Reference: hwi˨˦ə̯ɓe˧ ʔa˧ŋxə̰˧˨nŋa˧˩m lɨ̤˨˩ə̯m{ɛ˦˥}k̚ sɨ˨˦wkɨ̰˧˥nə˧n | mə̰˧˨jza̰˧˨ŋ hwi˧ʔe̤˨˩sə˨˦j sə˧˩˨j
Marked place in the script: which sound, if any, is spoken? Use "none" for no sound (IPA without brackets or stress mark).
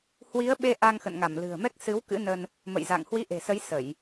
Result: ɛ˦˥